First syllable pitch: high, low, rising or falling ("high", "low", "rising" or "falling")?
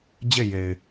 falling